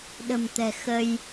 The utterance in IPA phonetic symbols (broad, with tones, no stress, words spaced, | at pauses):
ɗə̤˨˩mt̪ɛ̤˨˩xə˧j